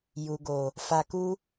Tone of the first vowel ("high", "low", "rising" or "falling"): low